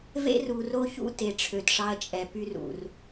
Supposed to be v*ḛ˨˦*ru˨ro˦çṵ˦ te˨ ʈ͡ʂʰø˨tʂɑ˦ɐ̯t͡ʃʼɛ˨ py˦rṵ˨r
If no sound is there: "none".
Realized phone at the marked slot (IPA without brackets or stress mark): ḛ˦